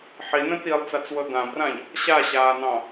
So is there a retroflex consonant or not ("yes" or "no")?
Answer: no